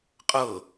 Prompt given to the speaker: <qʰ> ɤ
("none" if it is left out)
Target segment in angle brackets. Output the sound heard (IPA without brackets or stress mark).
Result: qʼ